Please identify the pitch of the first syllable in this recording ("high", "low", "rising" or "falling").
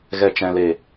low